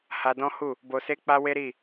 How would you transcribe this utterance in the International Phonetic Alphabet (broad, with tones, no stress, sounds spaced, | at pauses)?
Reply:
h a˧ d ɔ̃˦ h u˦˨ | b o˧ s e˦ k͡p a˦ w e˦ ɾ i˦˨